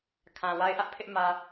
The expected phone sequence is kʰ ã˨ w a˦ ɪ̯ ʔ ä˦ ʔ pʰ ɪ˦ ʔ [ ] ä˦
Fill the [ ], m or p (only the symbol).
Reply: m